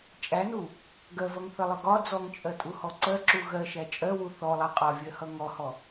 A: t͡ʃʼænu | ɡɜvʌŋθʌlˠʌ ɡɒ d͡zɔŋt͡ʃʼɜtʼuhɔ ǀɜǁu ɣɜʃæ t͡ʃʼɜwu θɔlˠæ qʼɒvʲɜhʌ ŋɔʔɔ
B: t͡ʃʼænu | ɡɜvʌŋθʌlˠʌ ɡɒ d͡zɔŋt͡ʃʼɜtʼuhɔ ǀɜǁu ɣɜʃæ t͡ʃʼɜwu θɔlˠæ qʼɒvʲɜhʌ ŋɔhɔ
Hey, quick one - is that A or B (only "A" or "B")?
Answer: B